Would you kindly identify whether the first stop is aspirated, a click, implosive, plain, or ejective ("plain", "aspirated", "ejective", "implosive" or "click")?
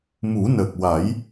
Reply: plain